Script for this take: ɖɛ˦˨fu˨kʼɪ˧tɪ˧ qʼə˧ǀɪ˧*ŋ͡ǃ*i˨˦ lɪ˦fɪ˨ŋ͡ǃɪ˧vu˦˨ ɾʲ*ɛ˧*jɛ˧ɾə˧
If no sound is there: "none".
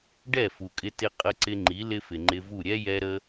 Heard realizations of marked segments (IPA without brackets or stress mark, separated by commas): ŋ͡ǃ, ɛ˦